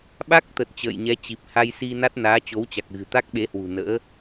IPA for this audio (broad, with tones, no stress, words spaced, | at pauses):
ɓa˦˥k̚t̪ə˨˩t̚ t͡ɕə̰ː˧˨jɲɛ˨˦ t͡ɕi˨˩p̚ ha˧jsi˧na˦˥t̚ naː˨˦t͡ɕo˨˦wt͡ɕa˨˩k̚ ɣɨ̤˨˩t̪a˦˥k̚ɓe˨˦hwṳ˨˩ nə̰ː˧˥